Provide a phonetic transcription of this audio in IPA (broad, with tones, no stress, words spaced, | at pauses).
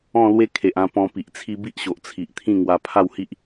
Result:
ɔ̃˥˧lwe˦ kʰe˨ʔã˧ pɔ̃˧pi˨ʔt͡sʰi˦ bi˦ʔɕo˨ʔt͡sʰi˨ʔt̪ʰĩ˥˧ ŋwa˧ pʰa˥˧whi˦ʔ